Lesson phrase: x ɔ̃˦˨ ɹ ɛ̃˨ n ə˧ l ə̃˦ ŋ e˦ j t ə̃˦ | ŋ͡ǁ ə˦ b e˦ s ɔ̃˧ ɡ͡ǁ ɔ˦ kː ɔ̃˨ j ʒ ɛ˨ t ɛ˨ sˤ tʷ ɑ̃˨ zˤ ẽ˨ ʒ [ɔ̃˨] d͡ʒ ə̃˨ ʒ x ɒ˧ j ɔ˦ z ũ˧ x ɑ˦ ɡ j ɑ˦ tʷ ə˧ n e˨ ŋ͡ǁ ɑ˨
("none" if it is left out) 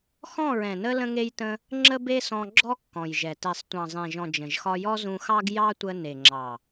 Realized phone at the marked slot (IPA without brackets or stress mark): ɔ̃˨